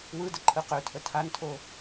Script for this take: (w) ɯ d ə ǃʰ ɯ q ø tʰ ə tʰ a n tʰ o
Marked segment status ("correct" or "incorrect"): correct